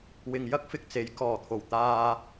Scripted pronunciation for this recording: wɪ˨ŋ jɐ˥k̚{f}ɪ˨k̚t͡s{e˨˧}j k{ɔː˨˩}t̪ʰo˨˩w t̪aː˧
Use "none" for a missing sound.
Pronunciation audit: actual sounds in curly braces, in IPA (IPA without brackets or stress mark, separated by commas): f, e˨˧, ɔː˨˩